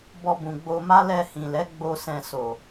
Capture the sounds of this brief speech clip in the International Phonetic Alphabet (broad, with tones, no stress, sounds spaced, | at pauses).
b ɔ˧ b ũ˨ ɡ͡b o˧ m a˦ l ɛ˧ h ĩ˨ l ɛ˨˦ ɡ͡b o˧ s ɛ̃˧ s o˨